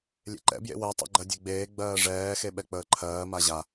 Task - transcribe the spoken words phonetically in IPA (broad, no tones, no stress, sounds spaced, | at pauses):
lʲ ḛ ǃ ɛ̰ b j ḛ w ɜ tˤ ɛ̰ ɡ͡ǃ ɜ dʲ e ɡ͡b eː ɡ͡b ɜː ʐ ɛː x e ɓ ɛ k͡p əː ǃʰ ɜː m a ʑ a